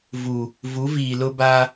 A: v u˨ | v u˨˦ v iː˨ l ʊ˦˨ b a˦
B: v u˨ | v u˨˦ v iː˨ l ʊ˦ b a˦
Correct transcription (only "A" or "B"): B